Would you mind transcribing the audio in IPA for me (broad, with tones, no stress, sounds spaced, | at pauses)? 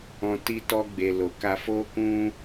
ɔ̃˨ t i˧ t ɔ˧ ɡ͡b e˨ l o˨ k a˧ f o˧ k ũ˧